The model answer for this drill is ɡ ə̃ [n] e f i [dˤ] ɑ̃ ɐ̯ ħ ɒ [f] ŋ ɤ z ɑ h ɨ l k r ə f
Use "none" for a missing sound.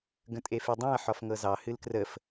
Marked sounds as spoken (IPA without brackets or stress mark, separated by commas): tʼ, dˤ, f